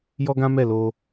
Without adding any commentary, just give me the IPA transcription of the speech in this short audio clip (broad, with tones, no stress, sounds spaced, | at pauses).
j ɔ˦ ɡ ã˦ m ɛ˦˨ l o˧